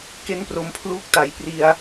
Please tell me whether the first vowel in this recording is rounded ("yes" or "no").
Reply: no